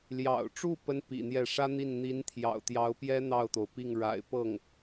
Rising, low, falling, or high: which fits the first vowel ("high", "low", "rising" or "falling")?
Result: low